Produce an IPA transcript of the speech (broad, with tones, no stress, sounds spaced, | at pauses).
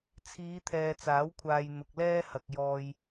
t͡sʰ iː˨˧ t̪ʰ ɛː˨ t͡s aː˨˥ w kʷʰ aː˨ j n̪ ʊ˨ k̚ l ɛː˥ h ɐ˨ k̚ j ɔː˨ j